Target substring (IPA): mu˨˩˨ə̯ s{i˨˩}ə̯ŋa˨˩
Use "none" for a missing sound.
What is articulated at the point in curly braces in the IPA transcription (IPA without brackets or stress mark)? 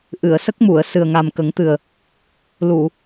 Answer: ɨ˨˩